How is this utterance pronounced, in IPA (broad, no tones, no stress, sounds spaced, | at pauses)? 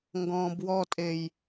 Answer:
ŋ ɡ ɔ̃ː b w ɔ tʼ e j